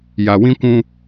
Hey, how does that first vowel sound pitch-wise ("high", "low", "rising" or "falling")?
low